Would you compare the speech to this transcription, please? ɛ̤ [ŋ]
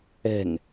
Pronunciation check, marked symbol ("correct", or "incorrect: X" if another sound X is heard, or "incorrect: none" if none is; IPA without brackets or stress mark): correct